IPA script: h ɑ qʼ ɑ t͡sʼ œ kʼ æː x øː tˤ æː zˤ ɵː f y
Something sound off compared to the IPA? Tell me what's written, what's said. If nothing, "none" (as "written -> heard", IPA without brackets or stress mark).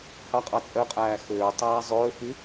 kʼ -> qʼ